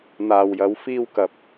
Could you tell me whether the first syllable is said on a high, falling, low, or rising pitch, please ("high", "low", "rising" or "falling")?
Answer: low